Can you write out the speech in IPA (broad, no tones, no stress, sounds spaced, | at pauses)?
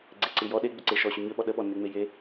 ɡ͡ǀ e ǀ ɨ j ɔ ɗ e ɡ͡b ʏ ǀ e ʃ ɔ ɕ ʏ ɲ ʏ ɓ ɔ ɗ ə ɓ ɔ nː e ŋ͡m e j e